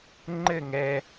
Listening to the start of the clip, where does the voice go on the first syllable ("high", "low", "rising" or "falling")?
falling